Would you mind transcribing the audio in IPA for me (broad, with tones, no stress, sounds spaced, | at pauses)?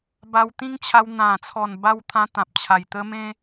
b a˧ w t̪ ĩ˦ ŋ t͡ɕʰ a˧ w n̪ ã˨˩ t͡sʰ ɔ˨˩ n b a˧ w t̪ʰ ã˧ t̪ ã˨ p̚ t͡ɕʰ a˨˩ j t̪ ə˦ m ẽ˦